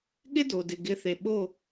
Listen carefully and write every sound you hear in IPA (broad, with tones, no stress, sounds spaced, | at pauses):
ɠ ɪ˥ d o˩ d ɪ˩ ɡ ɪ˩˥ θ e˩ ɓ o˥˩